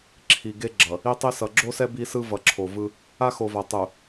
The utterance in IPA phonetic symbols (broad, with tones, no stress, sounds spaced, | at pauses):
ǁʰ i˨ ɡ e˦ ɡ͡ǁ ʌ˨ | i˦ tˤ i˦ s ʌ˨ ɡ͡ǁ o˦ s ɛ˦ b i˦ s ɯ˦ v ʌ˨ ǁʰ o˨ v ɯ˦ | a˦ x o˨ v a˨ tˤ u˨